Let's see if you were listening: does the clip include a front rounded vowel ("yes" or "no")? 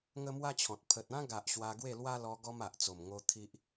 no